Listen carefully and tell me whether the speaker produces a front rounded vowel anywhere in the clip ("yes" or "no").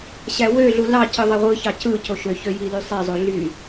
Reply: yes